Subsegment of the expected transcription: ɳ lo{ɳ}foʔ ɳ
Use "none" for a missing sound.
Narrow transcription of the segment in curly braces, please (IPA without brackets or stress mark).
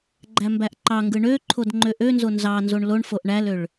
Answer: ɳ